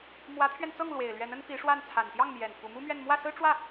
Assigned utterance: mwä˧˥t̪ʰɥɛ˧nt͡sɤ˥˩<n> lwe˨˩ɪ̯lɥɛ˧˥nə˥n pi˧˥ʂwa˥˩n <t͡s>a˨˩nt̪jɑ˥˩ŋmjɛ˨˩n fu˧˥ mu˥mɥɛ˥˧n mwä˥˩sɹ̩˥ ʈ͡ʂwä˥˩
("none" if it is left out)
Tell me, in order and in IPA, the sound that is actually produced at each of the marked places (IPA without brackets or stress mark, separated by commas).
ŋ, t͡sʰ